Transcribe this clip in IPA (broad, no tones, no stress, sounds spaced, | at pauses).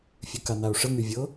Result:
fʲ ʉ k a n a o̯ ʂ ə ŋ y vʲ ɤ